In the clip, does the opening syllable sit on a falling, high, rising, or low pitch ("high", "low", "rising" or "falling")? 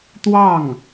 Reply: falling